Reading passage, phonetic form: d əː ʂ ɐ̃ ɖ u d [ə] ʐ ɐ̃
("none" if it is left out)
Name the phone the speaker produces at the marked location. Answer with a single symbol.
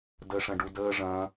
əː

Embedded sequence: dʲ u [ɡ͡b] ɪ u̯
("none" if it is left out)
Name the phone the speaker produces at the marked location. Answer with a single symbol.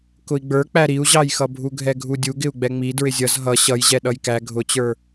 ɡ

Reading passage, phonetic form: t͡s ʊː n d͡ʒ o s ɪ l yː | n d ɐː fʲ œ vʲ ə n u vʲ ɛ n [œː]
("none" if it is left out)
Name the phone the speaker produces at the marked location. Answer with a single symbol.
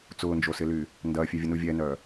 œː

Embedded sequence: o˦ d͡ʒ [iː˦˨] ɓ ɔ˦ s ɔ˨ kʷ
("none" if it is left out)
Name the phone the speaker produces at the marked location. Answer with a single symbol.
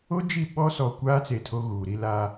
i˦˨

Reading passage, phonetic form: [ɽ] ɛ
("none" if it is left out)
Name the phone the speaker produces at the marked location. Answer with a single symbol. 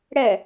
ɽ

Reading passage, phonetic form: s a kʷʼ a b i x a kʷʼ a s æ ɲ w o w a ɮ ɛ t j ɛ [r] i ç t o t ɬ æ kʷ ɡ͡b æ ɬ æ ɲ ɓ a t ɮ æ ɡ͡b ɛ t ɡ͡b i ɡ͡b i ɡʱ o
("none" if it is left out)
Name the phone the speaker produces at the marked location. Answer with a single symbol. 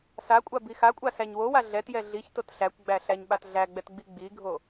ɮ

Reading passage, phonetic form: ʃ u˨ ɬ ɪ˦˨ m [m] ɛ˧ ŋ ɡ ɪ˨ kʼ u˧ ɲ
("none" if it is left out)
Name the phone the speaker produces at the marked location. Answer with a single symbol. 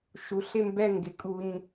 b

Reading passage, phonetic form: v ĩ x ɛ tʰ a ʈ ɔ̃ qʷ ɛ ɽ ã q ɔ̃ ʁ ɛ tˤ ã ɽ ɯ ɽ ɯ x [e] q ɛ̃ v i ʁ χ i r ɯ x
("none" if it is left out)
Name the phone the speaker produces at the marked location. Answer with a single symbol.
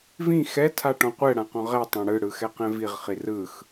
ɛ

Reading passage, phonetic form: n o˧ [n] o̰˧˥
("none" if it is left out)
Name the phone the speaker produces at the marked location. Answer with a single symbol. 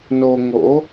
ŋ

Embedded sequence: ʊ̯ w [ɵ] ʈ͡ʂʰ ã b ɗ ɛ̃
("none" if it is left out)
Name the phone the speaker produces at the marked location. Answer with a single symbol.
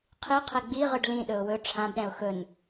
ɵ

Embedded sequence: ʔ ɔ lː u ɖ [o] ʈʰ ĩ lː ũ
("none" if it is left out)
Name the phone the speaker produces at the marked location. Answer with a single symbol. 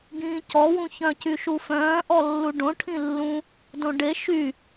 õ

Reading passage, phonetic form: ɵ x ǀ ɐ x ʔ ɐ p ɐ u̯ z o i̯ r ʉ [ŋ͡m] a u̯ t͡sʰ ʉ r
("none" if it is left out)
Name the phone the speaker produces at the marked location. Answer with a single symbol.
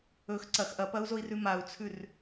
m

